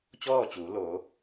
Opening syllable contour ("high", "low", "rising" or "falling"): falling